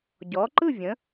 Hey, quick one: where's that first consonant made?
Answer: palate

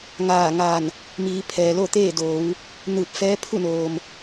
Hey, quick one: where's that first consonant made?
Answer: velum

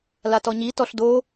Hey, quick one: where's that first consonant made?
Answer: tongue tip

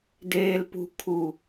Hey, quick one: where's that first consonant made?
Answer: tongue tip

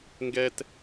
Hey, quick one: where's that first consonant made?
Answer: velum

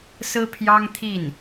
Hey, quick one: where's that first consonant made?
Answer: tongue tip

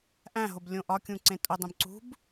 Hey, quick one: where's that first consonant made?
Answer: throat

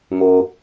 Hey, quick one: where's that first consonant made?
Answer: velum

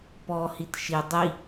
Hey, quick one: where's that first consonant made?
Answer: lips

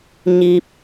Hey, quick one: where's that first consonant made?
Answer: palate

